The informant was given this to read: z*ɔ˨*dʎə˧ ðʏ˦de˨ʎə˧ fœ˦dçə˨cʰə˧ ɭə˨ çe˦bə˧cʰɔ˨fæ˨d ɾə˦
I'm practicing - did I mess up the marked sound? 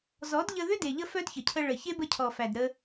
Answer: yes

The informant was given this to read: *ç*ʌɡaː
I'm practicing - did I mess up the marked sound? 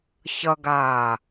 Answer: no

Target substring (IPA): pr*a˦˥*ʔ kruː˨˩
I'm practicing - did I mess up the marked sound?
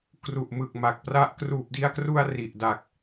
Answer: no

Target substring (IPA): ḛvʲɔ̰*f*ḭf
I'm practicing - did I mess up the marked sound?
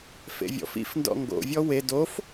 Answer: no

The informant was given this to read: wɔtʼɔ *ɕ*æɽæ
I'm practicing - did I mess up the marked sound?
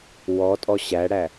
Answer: no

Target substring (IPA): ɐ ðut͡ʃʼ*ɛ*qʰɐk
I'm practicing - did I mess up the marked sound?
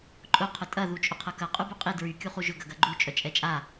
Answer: yes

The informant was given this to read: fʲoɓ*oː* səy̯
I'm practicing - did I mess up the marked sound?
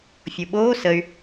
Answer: no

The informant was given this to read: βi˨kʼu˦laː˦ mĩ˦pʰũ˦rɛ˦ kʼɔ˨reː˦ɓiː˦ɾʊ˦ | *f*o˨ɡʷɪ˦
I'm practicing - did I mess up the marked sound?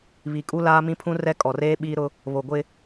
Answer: yes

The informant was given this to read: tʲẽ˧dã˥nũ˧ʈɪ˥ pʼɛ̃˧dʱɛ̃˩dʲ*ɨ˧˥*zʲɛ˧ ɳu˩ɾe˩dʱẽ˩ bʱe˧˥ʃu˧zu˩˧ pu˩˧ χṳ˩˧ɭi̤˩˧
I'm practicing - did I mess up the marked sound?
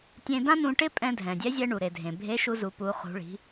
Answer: yes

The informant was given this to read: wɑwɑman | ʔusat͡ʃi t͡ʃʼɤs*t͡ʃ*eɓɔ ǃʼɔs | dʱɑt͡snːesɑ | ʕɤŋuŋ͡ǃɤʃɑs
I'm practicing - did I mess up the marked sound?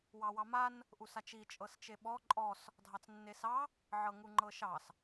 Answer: no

